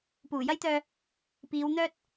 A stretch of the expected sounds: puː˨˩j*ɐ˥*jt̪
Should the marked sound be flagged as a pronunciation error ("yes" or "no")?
no